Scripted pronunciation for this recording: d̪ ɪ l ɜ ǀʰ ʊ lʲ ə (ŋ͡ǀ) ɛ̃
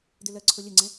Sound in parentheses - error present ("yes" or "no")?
no